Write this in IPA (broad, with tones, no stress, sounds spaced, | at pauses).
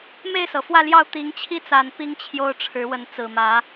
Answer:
m e˥˨ ɪ̯ s ɤ˩ f w ä˥˨ l j ɑ˥˨ ʊ̯ t̪ i˨˦ ŋ t͡ɕʰ i˦ t͡s a˨˩ n p i˦ ŋ t͡ɕʰ j o˦ ʊ̯ ʈ͡ʂʰ ɻ̩˨˦ w ə˨˦ n t͡s ɹ̩˨˩ m ä˨˦